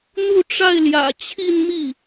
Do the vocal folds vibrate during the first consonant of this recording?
yes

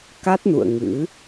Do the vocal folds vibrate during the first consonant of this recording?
no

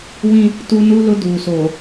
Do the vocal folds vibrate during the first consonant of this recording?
yes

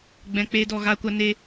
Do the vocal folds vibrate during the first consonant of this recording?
yes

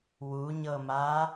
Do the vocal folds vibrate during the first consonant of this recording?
yes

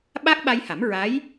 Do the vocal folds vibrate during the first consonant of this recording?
yes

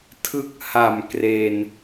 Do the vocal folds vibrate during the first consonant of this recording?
no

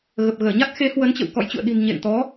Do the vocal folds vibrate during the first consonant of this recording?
yes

